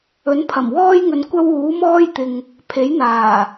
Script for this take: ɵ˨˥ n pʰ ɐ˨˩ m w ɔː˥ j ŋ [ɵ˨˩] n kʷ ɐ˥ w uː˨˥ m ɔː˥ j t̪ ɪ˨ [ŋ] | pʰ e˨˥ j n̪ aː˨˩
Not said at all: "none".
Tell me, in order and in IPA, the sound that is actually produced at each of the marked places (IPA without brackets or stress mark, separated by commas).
ɵ˨, ŋ